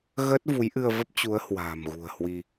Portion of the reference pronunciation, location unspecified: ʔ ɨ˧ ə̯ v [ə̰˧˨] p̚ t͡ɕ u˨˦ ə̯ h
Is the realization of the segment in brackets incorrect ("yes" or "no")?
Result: yes